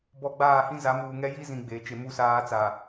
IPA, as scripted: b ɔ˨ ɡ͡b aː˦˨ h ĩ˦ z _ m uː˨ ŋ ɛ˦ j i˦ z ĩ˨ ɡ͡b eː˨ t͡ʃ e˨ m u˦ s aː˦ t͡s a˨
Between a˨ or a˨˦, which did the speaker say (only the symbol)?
a˨˦